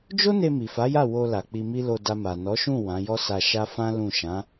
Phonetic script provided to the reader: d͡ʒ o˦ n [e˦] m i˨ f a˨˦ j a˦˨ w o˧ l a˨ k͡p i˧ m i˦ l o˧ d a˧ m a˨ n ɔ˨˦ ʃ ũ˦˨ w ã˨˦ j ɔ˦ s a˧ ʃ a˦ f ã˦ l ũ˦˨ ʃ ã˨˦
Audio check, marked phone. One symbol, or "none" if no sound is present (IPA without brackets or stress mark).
e˧